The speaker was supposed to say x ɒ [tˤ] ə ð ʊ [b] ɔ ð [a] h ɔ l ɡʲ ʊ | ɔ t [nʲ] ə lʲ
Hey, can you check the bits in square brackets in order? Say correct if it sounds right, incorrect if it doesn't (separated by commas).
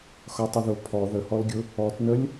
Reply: correct, incorrect, incorrect, incorrect